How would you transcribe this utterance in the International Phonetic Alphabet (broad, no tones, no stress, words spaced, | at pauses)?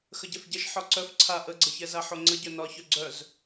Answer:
xəɟɛfɟɛʃ ħɒǀœf ǀʰa ʔəɡ͡ǀəçɛza ħoŋ͡ǀəɟœ nɒçœ ɡ͡ǀœz